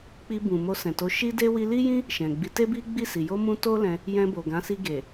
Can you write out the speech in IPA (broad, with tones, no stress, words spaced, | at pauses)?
k͡pi˧ bũ˨mo˧sɛ̃˨to˨˦ ʃi˦de˦ wi˧li˦jĩ˦ | ʃɛ̃˨ɡ͡bi˨˦ te˦bi˦ɡ͡bi˦˨si˨ jo˧mũ˧ to˦ lɛ̃˧ | jɛ̃˧bo˨ɡã˨˦si˧ ɡe˨